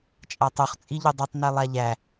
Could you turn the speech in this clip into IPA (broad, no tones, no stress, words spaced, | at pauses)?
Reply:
t͡ʃʼatˤuχ t͡sʼiʎudˤutˤ nelˠaʎæ